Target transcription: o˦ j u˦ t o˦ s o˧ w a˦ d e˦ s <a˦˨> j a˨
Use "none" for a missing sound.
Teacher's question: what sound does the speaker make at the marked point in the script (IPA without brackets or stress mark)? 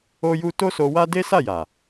a˦˨